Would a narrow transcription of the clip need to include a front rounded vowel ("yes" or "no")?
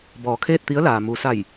no